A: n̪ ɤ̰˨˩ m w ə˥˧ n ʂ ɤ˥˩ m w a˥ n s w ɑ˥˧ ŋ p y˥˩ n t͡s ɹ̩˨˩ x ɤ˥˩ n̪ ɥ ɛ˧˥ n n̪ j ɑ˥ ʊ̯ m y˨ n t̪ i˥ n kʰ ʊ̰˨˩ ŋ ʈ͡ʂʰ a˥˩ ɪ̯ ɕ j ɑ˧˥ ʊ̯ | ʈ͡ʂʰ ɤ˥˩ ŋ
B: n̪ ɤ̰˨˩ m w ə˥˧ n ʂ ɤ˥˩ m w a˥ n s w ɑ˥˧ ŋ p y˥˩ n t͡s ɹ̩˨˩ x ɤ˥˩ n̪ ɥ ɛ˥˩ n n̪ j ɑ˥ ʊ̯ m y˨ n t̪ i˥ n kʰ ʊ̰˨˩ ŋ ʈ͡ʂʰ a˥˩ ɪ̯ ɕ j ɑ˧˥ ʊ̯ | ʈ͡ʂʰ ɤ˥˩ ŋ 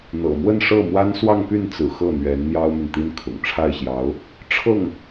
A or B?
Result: A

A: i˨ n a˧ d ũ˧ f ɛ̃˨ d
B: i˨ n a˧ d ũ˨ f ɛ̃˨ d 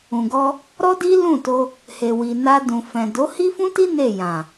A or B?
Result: B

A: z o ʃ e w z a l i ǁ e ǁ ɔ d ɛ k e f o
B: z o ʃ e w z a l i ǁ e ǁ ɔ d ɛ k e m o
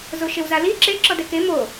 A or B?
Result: B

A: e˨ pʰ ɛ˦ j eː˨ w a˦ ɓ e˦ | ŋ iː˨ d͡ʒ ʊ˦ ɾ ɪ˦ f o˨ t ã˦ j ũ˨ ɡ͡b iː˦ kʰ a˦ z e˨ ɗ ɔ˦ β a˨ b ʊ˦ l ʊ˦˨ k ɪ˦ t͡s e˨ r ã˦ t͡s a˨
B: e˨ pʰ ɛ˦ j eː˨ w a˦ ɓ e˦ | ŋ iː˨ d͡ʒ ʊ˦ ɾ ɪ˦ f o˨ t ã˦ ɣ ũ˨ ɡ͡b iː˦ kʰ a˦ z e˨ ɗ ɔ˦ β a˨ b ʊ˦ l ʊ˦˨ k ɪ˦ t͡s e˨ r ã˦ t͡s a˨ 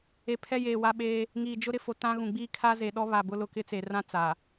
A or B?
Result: B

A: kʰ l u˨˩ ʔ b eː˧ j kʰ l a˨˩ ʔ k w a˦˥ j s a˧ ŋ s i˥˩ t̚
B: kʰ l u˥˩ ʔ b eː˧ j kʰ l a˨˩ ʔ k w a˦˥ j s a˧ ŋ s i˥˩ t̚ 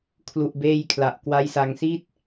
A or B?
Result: A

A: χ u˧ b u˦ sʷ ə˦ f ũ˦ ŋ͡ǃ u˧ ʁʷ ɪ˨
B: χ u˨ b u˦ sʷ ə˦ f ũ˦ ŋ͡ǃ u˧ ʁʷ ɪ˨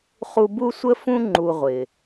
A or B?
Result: A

